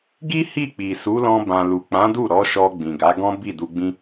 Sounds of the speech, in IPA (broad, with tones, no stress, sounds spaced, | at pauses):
ɡ i˦ h i˦˨ k͡p i˨ s u˨˦ l ɔ̃˧ b ã˨ l u˨ k͡p ã˨˦ d u˦˨ ɾ ɔ˨˦ ʃ ɔ˧ ɡ͡b ĩ˨ ɡ a˨˦ ɡ ɔ̃˦ b i˦˨ d u˧ ɡ͡b ĩ˦